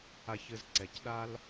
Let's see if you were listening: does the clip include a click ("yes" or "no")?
yes